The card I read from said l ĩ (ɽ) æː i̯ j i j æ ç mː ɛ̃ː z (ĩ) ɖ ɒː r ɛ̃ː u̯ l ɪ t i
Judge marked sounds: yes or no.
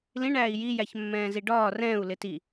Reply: no, no

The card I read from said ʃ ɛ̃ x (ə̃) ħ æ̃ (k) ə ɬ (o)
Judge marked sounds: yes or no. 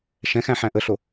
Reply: no, no, yes

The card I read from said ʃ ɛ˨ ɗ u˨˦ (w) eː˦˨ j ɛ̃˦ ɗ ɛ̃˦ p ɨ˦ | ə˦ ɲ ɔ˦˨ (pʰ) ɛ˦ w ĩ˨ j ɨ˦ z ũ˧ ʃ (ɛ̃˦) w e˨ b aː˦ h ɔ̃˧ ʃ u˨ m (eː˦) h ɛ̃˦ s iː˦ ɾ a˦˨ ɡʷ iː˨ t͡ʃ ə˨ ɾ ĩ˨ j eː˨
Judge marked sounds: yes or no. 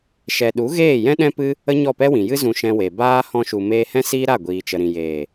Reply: no, no, no, no

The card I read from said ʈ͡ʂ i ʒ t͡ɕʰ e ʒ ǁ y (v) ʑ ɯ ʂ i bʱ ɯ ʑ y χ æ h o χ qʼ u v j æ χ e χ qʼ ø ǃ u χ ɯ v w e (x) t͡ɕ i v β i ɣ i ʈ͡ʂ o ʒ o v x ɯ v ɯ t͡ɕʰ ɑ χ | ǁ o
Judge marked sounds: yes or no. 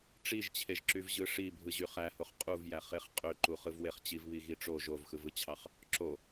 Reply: yes, no

